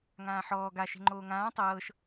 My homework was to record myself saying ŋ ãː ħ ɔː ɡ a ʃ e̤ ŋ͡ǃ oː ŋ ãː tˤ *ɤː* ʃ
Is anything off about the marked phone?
no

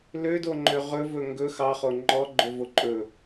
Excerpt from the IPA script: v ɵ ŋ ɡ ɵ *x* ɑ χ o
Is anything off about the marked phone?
no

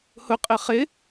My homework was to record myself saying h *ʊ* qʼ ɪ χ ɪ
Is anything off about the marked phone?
no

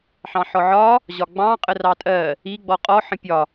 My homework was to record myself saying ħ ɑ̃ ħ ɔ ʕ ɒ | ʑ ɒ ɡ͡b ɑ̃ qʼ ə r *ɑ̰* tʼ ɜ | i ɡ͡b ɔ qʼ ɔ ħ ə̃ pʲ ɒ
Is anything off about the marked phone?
yes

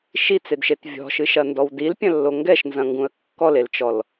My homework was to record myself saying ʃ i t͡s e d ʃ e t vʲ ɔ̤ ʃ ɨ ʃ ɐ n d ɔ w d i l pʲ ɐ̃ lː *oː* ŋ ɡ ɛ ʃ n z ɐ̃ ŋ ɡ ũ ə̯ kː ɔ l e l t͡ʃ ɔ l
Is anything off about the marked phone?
yes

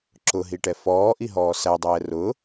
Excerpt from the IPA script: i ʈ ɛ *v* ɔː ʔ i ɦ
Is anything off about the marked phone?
yes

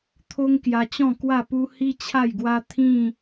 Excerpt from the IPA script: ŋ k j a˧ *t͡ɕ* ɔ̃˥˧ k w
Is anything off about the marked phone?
no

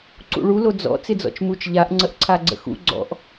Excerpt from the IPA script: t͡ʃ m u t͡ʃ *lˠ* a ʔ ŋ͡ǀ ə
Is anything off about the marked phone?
yes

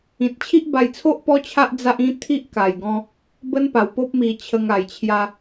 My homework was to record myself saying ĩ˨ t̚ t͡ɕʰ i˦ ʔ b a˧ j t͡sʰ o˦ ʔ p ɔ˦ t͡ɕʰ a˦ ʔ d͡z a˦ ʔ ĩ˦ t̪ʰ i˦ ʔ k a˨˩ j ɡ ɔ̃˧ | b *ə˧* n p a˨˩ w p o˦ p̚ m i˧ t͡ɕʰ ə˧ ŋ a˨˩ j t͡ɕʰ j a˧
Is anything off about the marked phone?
yes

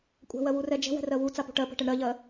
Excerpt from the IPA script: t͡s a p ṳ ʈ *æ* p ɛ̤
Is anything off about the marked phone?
yes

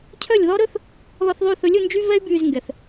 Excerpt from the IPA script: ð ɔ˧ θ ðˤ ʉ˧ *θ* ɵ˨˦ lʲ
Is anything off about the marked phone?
no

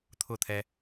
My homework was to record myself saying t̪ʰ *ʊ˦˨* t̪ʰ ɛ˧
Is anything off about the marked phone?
no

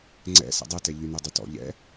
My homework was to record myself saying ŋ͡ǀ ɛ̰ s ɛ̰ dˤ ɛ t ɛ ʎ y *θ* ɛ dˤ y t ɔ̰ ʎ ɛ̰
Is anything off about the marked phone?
yes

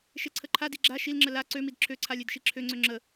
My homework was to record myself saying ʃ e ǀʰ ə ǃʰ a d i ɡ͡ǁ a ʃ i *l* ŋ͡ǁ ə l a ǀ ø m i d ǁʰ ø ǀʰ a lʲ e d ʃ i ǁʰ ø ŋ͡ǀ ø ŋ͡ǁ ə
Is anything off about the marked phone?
no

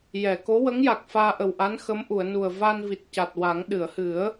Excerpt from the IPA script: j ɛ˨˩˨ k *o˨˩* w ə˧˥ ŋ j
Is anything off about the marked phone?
yes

